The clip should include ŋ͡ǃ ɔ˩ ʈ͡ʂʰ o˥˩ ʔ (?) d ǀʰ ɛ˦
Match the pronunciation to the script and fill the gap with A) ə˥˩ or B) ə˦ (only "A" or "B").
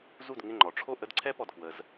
B